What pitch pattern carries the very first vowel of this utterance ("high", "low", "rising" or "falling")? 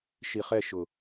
low